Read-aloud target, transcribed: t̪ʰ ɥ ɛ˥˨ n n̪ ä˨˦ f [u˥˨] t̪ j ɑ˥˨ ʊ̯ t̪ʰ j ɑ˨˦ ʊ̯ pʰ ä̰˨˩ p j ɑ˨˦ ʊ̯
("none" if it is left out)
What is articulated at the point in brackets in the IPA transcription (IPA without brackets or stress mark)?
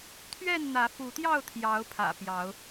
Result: u˨˦